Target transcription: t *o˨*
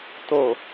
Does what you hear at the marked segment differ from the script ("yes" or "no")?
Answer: no